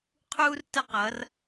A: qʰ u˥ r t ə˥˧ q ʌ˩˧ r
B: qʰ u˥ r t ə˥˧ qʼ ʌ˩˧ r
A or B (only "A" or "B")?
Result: A